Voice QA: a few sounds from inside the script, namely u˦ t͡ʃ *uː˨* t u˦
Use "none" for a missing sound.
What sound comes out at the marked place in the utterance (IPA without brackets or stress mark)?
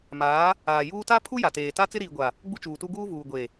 uː˨